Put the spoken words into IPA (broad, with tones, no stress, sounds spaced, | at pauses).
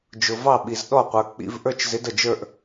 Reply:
d͡ʒ ʊ˨ v ɑ˥˩ ɓ i˨ z ɗ ɔ˥˩ qʷ ə˞˨ k͡p ḭ˧˥˧ v ʔ ə˞˥˧ t͡ʃ z ɪ˨˥ d ə˨ d͡ʒ ə˞˥˧ ʔ